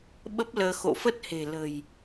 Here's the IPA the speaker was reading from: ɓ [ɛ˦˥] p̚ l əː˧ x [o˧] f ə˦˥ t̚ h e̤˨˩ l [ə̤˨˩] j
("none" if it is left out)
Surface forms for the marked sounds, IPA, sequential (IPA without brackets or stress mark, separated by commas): ə˦˥, o̰˧˨, ə̤˨˩